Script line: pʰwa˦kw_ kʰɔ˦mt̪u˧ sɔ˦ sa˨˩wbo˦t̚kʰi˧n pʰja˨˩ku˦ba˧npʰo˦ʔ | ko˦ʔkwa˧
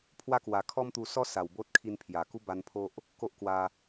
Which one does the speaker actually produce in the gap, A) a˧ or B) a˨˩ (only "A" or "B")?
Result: B